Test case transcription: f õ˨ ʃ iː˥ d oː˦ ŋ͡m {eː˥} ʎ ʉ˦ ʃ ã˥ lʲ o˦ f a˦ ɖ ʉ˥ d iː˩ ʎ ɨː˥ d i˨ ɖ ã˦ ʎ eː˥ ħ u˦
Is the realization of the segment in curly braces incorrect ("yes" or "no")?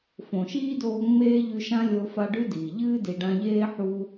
no